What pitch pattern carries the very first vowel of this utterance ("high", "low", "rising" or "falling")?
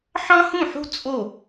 high